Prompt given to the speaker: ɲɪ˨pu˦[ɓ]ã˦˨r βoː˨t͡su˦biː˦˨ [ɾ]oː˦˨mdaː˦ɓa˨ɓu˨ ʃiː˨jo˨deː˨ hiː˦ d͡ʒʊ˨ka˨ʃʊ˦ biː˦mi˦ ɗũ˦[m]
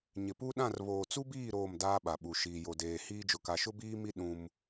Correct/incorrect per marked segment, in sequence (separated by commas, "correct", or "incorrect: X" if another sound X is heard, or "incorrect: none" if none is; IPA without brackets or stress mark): incorrect: ɗ, correct, correct